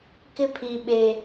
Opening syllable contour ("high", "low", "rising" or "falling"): high